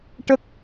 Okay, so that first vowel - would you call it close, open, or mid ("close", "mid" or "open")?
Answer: mid